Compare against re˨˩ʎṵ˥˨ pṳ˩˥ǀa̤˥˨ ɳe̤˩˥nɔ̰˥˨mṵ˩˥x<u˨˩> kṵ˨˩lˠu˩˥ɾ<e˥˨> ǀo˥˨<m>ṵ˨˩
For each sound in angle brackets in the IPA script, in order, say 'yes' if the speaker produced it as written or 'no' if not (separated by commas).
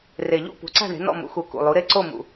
yes, yes, yes